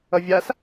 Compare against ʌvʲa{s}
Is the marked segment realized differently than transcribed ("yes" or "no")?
no